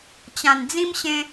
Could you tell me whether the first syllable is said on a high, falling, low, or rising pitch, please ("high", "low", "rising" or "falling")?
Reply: low